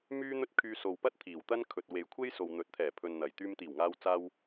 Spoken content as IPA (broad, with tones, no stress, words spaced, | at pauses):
myː˥n̪ɵ˥t̚ kʰyː˧so˨wpɐ˥t̚ t̪ʰiː˨˩wt̪ɐ˥nkʰɵ˨t̚we˨j kʷʰe˥jso˨wn̪ɵ˨˥t̚t̪ʰɛː˨˩ pʰɵ˨nn̪ɐ˨˩j t̪yː˧mt̪iː˨˩wŋaː˧wt͡saː˧w